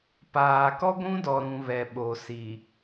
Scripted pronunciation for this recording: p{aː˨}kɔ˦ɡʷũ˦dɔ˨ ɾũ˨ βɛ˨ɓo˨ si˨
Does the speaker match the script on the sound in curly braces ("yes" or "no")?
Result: yes